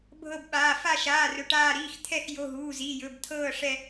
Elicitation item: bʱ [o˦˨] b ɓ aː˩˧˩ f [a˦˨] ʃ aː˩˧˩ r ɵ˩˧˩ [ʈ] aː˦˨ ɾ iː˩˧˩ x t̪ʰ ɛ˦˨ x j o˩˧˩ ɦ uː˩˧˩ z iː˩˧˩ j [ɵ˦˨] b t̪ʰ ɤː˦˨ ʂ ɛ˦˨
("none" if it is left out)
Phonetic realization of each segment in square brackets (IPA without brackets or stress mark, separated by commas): ɤ˦˨, a˦˨, ʈ, ɵ˩˧˩